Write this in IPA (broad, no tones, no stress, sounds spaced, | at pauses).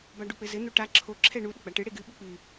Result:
b a ɖ u k͡p ɘ z ɘ n̪ o ʈ a ǁʰ o ǁʰ ɛ ɳ u ɗ ɘ ɡ͡b a ʈ ɨ ɽ e ɡ ɨ ɓ ɨ k͡p ɨ